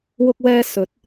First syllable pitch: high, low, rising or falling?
high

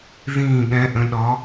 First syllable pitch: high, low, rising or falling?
low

